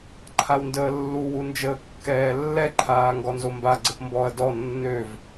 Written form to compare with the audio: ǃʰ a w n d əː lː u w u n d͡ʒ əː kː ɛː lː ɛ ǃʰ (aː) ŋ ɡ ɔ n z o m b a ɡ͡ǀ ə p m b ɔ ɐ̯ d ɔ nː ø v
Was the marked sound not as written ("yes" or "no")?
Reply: no